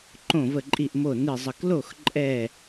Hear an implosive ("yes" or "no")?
no